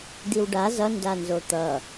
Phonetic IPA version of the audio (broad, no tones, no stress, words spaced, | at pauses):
d̪iwɖa zʌ ndanzot̪ʌ